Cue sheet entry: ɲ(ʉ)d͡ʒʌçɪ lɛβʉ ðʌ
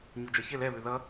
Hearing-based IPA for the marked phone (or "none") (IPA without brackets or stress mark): u